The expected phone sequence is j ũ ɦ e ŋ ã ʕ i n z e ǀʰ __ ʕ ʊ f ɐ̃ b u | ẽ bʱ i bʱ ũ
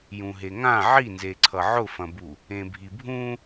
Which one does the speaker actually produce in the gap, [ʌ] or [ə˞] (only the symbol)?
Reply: ʌ